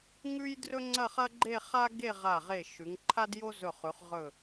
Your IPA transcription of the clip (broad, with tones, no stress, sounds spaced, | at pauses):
ŋ ʉ˥ j d r ɵ˥ ŋ͡ǀ ɐ˥˧ χ ɐ˥ ɡ͡ǃ e˥˧ χ a˥ ɡ e˥˧ ʁ a˧˩ ʁ e˧˩ ʃ ʉ˩˧ ŋ ǃʰ a˥ d j o˥ z ɵ˧˩ χ ʉ˩˧ χ ʁ ɵ˧˩